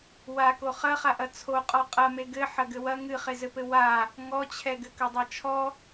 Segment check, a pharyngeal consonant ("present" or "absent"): present